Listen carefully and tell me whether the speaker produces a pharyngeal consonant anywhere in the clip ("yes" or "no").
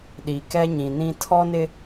no